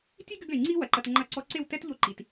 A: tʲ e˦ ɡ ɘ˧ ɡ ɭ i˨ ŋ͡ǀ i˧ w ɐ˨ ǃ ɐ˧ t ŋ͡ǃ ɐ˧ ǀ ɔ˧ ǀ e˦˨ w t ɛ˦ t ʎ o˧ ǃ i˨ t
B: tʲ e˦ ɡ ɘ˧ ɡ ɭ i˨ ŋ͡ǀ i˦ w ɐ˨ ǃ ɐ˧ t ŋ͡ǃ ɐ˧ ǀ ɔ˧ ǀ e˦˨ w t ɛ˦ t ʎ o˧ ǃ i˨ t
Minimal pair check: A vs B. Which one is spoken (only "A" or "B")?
B